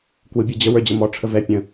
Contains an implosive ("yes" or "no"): no